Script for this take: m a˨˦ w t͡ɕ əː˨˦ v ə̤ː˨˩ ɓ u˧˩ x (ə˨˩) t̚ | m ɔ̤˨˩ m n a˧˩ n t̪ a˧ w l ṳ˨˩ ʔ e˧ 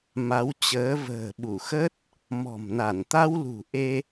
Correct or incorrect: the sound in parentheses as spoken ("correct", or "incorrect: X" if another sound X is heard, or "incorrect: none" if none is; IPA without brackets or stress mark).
incorrect: ə˦˥